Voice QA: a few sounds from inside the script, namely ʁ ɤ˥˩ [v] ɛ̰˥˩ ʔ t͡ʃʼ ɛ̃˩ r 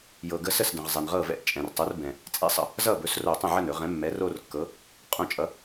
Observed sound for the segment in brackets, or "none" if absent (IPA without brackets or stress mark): v